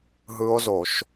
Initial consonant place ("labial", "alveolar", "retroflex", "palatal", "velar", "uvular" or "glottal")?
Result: glottal